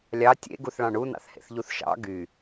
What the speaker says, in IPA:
lʲɑ tʲḛɡuθɭɑ̃ ɳunɑ̰θhḛθʎuθ ʃɑ̰ ɡy

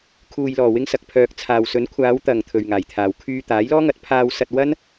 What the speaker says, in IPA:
kʰuː˨jlɔː˨˩wɪ˧ŋ sɐ˨k̚pʰœː˨k̚t͡sʰaː˨wsɵ˨˥n kʷʰaː˨˧wt̪ɐ˨˩ŋ t̪ʰɵ˨ɥŋaː˨˩jt̪ʰaː˨w kʰyː˧t̪aː˨˥jlɔː˥ŋɐ˨˥t̚ pʰaː˧wsɐ˧t̚wɐ˥n

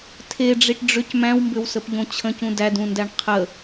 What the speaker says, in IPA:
tʰeɖ͡ʐiʈ ɖ͡ʐʏc mæ̃wmbʏwsəpʎõ t͡ɕʰə̃cũ dædũndæɳ qʰə

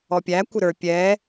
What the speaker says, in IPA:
ɔpʲæ kʷɪɾə˞ pʲɛ

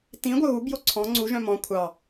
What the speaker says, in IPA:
tĩ ɡʷœɣubjo ǀʰɔ̃ ŋ͡ǀuʒœ̃ mɔ̃ kʷʰɑ

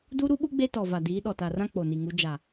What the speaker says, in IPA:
du˦ɾu˦ɓu˦ ɡ͡be˦tɔ˨va˨ diː˨˦ɗɔ˨ta˨rã˦ k͡po˨ni˨ŋu˨˦ d͡ʒa˨

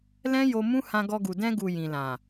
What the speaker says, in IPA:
lɛ̃˦jo˧ mũ˦ hã˧ɡɔ˧ɡu˨ dɛ̃˧ɡu˨ jĩ˨lã˨

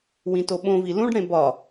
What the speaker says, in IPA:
wĩtoɓõvi lũɖɽẽ bɒ

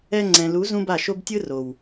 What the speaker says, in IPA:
ɛ˧ŋ͡ǀɛ̃˨lu˨˦ zũ˦ba˦˨ʃo˦b tʲɯ˦ro˨w

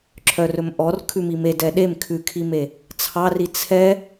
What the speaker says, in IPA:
ǁʰœrɵmʔɔr kʰʉmime dɛɗem kʰʉkʰime | t͡sʰɑri t͡sʰɛ

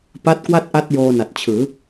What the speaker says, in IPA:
pa˦˥t̚kwa˥˩t̚ʔa˦˥t̚joː˧ na˨˩t̚t͡ɕʰɯː˩˦

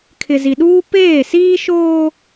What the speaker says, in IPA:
kʰɪ˨zi˨ɗuː˦ peː˦˨siː˦ ʃoː˦

